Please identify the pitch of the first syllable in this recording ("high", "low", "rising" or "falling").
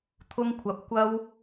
high